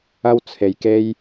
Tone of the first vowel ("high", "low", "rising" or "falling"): high